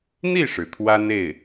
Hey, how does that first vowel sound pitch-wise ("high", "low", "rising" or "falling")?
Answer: falling